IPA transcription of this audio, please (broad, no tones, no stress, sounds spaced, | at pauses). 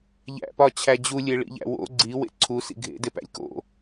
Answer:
ʎ æ̰ p ɒ t͡ɕʰ æ d͡ʑ u lʲ e ɭ ḭ ʎ æ̰ w o̰ ɡ͡ǀ i w ḛ ǀʰ u s ḭ ɡʱ ḛ d e p æ̰ lʲ k o̰